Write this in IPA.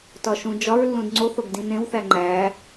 t ɒ ʃ ũ d͡ʒ ɒ ɹ lː ũ d ŋ͡ǀ o θ o ɡ d ĩ n ẽ w θ æ ŋ͡ǃ æ

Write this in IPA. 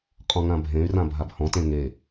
qʼ ɔ̃ ŋ ã bʱ ẽ y̯ r ã bʱ a b h ɔ̃ t ẽ ŋ e

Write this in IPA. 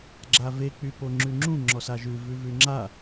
ɡ͡ǁ a v e k͡p y p o ŋ͡ǁ ʉ ŋ͡ǁ ũ ŋ͡ǁ ɔ s a ʒ ʉ v ʉ v ʉ ŋ͡ǁ a

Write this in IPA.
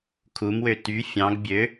kʰ u m w ø t y fʲ ɑ̃ ɡ bʲ ø

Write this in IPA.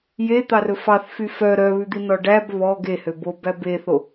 j e t̪ ɑ r ɵ f ɑ θ f y f œ ɾ œ β ʉ d̪ i n ɔ ɖ æ b β ɔ ɡ e h ø b o b æ b e θ o

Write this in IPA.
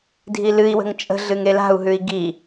dʱ i l ɨ i̯ w ə̤ ŋ t͡ʃʼ ə̤ ɮ ɨ ŋ e l a̤ u̯ ɦ ʉ i̯ ɡ i

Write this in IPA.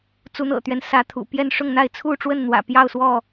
t͡s u˨˦ n̪ ɤ̰˨˩ t̪ ɥ ɛ˦ n s ä˨˦ t̪ʰ ṵ˨˩ p j ɛ˥˨ n ʂ ʊ˥˨ ŋ n̪ a˥˨ ɪ̯ t͡sʰ u˥˨ ʈ͡ʂ w ə˥˨ n n̪ w ä̰˨˩ p j ɑ˥˨ ʊ̯ s w ɔ˥˨

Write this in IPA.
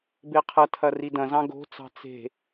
b e qʰ ɐ tʰ ɐ r i d ɐ̃ z ɑ̃ ɡ o̤ t͡s ɑ̤ t͡s e̤

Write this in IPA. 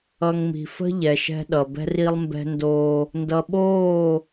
ʌ˨ ŋ m i̤˨ f ə̤˦ ʎ ɛ˨ ʃ ɛ̤˦ ɗ ʌ˨ b ɛ̤˦ r i˦ lˠ m b ɛ̤˦ n d oː˦ | n d ʌ˨ ɓ oː˦˨

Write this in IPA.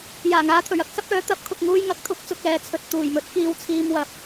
j aː˨˩ ŋ aː˨˧ t̪ʰ ɵ˨˩ ɥ ɐ˥ k̚ s ɐ˥ p̚ œː˨˥ t̪ ɐ˨˥ p̚ kʰ ʊ˨ k̚ ŋ uː˧ j ŋ ɐ˨˥ k̚ t̪ʰ ʊ˨˥ k̚ t͡s ʊ˨ k̚ ɛː˨ t͡sʰ ɵ˨ t̚ t̪ uː˨˩ j m ɵ˨˥ t̚ k iː˧ w t͡sʰ iː˧ m w ɐ˨ p̚

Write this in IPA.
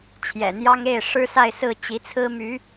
t͡ɕʰ j ɛ̰˨˩ n̪ j ɑ˥ ŋ e˥˩ ɪ̯ ʂ ɻ̩˥ s a˥˧ ɪ̯ s ɹ̩˥˩ t͡ɕ i˧˥ t͡sʰ ɹ̩˥ m y˧˥

